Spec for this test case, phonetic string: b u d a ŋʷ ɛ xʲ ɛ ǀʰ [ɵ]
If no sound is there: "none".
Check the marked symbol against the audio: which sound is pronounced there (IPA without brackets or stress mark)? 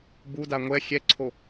o